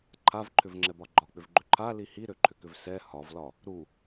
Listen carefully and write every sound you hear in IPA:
ǃʰ a v ǃʰ ʏ v ŋ͡ǁ ɛ b ɒ ɡ͡ǃ ɒ k͡p ʏ v ɡ͡ǃ ʏ ǃʰ a l i h i ɾ ø ǃʰ ʏ k ʏ v s ɛ h ɒ v l ɒ | ɾ u

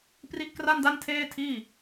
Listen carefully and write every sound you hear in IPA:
p r i˦˥ ʔ k r a˥˩ n d a˥˩ n tʰ eː˥˩ tʰ iː˥˩

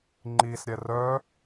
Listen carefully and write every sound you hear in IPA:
ŋ͡ǃ i s ɾʲ ɛ r œ

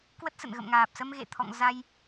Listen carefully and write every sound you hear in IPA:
k w ə˦˥ t̚ s ə̰˧˨ n ɣ ə̰˧˨ m ŋ aː˨˩ p̚ s ə˧ m ɣ ḛ˧˨ t̪ʰ ɔ̰˧˨ ŋ z a˧ j

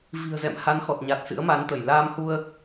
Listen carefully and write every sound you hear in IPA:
v i̤˨˩ ə̯ z ɛ̰˧˨ m h a˨˦ n x ɔ˨˩ t̚ ɲ a˨˩ t̚ s ɨ̰˧˥ ə̯ m a˨˦ n t̪ ə˧˩ j l aː˧ m h u˧ ə̯

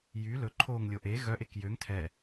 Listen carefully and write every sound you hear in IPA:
j y l ɵ ǃʰ o ŋ lʲ o ʔ e ɣ œ ʔ e k j ø ŋ tʰ ɛ

